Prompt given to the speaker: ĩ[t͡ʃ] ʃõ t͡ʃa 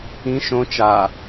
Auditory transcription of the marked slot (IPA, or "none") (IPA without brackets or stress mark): none